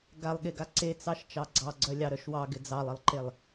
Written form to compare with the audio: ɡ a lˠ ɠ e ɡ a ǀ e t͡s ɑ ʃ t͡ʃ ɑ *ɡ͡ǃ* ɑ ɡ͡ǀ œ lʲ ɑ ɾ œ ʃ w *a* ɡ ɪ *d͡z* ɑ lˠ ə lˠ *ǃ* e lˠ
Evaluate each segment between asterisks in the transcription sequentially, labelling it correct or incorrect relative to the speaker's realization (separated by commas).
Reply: incorrect, incorrect, correct, correct